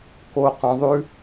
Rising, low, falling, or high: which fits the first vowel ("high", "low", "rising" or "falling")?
low